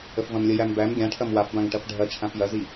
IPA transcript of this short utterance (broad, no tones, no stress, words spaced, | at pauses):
əfvɐ̃mlʲəjæm bæm ɡʲãʈʰɐm wafbãŋ ʈɐfɖʱɐt͡ʃʰãf jɐzi